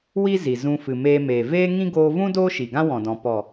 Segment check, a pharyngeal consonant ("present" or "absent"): absent